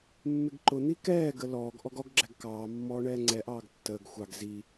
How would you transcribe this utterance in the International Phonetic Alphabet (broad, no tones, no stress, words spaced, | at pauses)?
mːɪɡǃʊn̪i kɛːɡə lɔːɡ ʔɔɡɔɡɡ͡ǁæɡ kɑː mːɔːɳɛːŋ͡ǀɛʔɑːɡ tːəːɡ xʷɑɡ zi